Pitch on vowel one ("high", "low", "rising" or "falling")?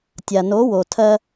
low